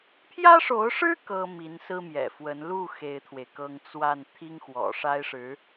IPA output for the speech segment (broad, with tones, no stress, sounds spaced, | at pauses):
pʰ j ä˥ ʂ o˧˥ ʊ̯ ʂ ɻ̩˥ k ɤ˥ m i˧˥ n s ɹ̩˥ m j ɛ̰˨˩ f w ə˧˥ n l u˥˩ x e˥ ɪ̯ t̪ʰ w e˨ ɪ̯ k ɤ˥ ŋ t͡s w a˥˩ n t̪ʰ i˥ ŋ x w ɔ̰˨˩ ʂ a˥ ɪ̯ ʂ ɻ̩˧˥